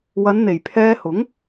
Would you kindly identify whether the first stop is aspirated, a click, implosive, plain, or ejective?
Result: aspirated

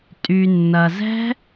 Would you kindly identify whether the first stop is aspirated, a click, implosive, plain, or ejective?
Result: ejective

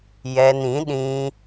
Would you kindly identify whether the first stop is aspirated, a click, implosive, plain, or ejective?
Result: implosive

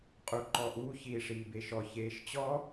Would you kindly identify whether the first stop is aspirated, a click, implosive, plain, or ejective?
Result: ejective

